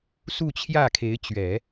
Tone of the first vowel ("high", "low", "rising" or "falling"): falling